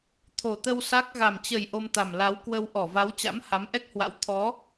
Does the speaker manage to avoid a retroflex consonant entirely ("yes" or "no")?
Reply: yes